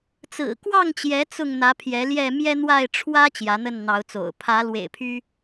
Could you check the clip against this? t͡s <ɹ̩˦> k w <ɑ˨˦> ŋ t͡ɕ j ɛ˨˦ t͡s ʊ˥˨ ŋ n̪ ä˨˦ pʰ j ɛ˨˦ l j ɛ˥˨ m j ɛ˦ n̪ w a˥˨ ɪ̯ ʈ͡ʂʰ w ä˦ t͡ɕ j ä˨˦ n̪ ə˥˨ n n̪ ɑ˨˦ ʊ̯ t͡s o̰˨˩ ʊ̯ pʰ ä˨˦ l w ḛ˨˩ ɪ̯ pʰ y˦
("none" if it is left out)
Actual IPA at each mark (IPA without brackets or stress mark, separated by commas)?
ɹ̩˨˩, ɑ˥˨